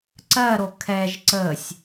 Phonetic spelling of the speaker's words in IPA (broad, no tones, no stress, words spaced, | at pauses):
ǀɜɾo kʰɛʒ ǀəsʲ